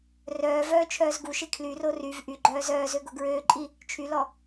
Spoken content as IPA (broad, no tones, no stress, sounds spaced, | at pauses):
r œː v œː t͡ʃʰ œː z ɡ u ʃ e kʰ l y r o r y v ʔ y ɡ͡ǃ œː z œː z ø ɡ o ɡ ɹ øː ǃʼ i | t͡ʃʰ y l ɔ